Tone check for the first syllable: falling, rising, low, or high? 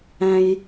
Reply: low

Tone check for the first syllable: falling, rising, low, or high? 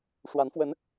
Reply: rising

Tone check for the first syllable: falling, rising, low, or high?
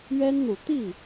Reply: high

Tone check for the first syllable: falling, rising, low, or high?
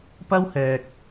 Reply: high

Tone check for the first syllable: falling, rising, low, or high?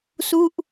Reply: falling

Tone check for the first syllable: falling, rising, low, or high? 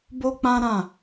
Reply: high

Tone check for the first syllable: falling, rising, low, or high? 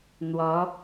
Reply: rising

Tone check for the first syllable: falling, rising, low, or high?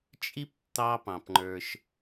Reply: high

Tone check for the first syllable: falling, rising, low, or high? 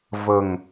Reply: low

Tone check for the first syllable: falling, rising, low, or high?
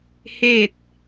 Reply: falling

